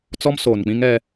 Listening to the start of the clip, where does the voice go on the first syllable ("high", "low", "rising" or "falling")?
high